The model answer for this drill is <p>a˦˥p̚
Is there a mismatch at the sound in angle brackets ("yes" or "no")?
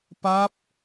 no